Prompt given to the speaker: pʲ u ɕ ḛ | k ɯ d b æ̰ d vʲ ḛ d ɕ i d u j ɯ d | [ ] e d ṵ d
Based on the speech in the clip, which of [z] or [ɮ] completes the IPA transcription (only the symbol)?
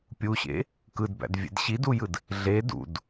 ɮ